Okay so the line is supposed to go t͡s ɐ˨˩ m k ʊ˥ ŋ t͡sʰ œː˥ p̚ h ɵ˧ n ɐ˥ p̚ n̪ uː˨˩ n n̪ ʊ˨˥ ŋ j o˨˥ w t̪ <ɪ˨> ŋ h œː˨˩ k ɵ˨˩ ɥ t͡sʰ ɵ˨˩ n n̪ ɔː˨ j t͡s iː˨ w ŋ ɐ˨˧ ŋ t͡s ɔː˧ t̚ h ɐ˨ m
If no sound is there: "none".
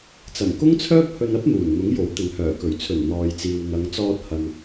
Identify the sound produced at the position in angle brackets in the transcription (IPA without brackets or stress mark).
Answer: ɪ˨